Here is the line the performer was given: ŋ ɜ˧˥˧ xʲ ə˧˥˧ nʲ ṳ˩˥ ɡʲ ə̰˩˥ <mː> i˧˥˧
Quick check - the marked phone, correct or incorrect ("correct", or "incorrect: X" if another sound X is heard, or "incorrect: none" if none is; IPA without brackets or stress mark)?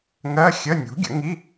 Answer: incorrect: ŋ